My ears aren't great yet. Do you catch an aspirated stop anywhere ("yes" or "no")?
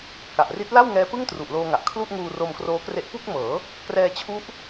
yes